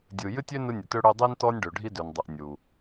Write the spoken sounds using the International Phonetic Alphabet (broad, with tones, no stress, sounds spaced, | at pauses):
dʲ ɯ˩ j ɨ˧ tʲ ø˧ n ɯ˧ nʲ ə˩ t ø˧ ɽ ø˧ dˤ i˧ n t ɔ˧ nʲ ɖ ø˩ ɖʱ i˧ d ø˩ n dˤ u˩ ʔ nʲ u˩